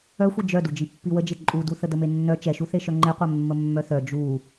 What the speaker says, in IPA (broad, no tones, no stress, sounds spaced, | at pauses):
œ xʷ i d͡ʒ œ d u d͡ʒ i pː i w ə d͡ʒ e ǃʼ u d u θ ə d ə m e nː œ t͡ʃ ɛ ʃ u θ e ʃ œ ŋ͡ǃ e qʷ ɛ mː ə mː œ θ œ d͡ʒ u